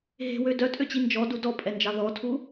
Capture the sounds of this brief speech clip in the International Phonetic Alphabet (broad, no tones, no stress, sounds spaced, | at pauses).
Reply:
ɦ e̤ w ø d œ tʼ ø t͡ɕ i n d͡ʒ ɔ d u d ɔ pʼ ɛ n d͡ʒ ɑ ð ɔ tʰ u